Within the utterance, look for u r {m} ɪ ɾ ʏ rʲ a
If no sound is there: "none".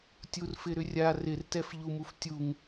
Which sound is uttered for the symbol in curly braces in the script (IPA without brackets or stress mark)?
f